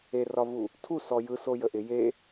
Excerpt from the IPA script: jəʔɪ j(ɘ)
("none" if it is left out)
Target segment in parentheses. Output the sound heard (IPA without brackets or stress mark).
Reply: e